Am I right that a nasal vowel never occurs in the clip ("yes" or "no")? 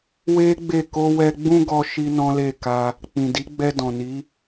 no